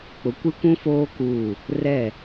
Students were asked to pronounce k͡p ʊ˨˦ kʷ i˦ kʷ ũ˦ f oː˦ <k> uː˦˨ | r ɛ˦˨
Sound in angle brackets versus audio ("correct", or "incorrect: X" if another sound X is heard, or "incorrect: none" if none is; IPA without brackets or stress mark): correct